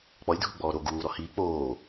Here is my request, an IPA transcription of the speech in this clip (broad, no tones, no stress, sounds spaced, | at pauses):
k͡p ɔ lʲ dʱ u ɡ͡b ɔː ɾ o ɡ uː ɾ ɔ h iː k͡p oː